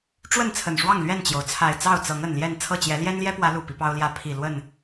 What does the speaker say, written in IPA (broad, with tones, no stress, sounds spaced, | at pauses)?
ʈ͡ʂ w ə˥˨ n t͡sʰ ə˨˩ n ʂ w ɑ˥˨ ŋ l ɥ ɛ˥˨ n t͡ɕ j o˩ ʊ̯ t͡sʰ a˨˩ ɪ̯ t͡s ɑ˥˨ ʊ̯ t͡s ɤ˨˦ ŋ ə˨˩ n l j ɛ˥˨ n t͡sʰ ɤ˥˨ t͡ɕ j ɛ˨˦ l j ɛ˦ n l j ɛ˦ p w ä˨˦ l u˨˩ p i˦ p ɑ˦ ʊ̯ l j ä˥˨ pʰ i˨˩ l w ə˥˨ n